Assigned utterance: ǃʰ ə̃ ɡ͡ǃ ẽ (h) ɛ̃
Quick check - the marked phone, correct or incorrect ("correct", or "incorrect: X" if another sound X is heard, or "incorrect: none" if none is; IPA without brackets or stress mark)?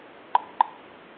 correct